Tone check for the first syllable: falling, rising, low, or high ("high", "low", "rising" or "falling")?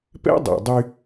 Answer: high